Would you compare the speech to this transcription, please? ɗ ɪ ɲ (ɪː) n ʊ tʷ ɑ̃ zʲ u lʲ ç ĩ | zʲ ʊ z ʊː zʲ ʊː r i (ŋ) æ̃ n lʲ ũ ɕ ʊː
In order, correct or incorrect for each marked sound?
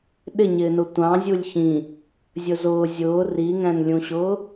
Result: correct, correct

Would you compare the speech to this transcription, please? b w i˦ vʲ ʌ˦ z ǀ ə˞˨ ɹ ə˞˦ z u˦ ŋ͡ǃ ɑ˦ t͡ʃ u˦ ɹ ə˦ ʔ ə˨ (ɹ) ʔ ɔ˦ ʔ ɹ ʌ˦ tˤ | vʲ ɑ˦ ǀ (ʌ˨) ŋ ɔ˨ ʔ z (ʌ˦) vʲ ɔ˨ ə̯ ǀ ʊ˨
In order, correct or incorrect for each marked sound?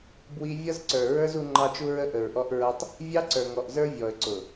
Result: correct, incorrect: ə˞˨, incorrect: ə˞˦

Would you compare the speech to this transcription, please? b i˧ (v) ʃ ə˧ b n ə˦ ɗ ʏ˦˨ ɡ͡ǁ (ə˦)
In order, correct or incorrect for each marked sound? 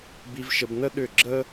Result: correct, correct

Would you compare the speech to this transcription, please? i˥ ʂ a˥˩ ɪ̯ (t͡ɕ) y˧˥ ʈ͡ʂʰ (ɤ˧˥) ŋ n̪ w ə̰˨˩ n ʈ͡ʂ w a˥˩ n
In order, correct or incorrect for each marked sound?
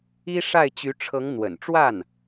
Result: correct, correct

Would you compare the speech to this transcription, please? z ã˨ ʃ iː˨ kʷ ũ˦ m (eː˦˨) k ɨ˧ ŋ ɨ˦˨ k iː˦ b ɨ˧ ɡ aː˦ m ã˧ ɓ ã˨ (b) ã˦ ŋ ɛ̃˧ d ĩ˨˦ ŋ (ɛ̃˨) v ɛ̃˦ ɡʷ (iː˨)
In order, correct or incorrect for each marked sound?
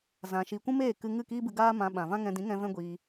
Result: correct, incorrect: v, incorrect: ɛ̃˧, incorrect: iː˧

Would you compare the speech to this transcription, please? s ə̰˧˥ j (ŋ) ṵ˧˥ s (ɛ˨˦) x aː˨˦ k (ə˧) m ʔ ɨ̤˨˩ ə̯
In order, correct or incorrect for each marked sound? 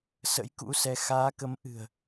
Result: incorrect: k, correct, incorrect: ə˨˦

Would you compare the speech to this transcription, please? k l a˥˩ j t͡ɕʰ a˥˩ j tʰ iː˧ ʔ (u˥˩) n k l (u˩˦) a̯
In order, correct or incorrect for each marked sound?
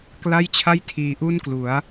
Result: correct, correct

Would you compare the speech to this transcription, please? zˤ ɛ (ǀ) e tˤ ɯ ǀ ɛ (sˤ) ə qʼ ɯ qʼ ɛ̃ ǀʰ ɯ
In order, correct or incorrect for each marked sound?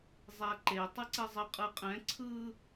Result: incorrect: ǃ, incorrect: zˤ

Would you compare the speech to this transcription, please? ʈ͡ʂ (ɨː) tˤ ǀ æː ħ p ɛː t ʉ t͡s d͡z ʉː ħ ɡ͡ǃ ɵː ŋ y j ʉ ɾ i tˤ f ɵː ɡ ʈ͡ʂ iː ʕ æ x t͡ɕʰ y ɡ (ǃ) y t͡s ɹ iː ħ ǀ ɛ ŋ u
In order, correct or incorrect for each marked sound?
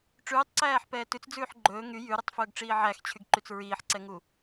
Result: incorrect: ʉː, correct

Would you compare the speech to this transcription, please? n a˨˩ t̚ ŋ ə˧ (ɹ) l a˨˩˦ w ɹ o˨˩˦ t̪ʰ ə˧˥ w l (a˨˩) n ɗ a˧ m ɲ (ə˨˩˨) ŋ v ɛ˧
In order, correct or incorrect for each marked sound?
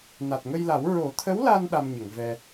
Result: incorrect: j, incorrect: a˧, correct

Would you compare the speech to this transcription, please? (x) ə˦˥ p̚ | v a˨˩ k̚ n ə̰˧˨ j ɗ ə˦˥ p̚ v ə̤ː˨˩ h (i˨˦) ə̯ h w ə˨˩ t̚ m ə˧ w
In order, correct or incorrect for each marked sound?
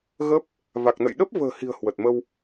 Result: incorrect: ɣ, incorrect: i̤˨˩

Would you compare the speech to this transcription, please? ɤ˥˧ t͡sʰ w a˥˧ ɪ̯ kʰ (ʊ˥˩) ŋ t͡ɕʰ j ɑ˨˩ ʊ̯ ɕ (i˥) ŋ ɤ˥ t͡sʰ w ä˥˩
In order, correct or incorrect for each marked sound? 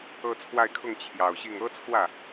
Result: correct, incorrect: i˥˩

